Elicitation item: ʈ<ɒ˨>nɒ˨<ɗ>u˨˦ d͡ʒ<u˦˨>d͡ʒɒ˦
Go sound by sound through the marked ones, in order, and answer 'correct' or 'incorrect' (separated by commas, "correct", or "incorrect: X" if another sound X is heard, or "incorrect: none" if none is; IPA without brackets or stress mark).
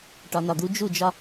correct, incorrect: d̪, correct